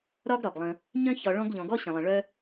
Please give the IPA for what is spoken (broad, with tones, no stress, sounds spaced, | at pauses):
ɾ ɒ˥ ɡ ɾ ɒ˩ ɡ lˠ ə̃˨ | ɲ œ̃˥ ç ɒ˨ ɭ ɔ̃˦ ɡ ʎ ɔ̃˩ ɡ ɔ˥ ɕ ə̃˩ lˠ ə̃˩ ɭ œ˦